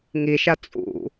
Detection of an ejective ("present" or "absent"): present